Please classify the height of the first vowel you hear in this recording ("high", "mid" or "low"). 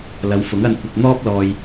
low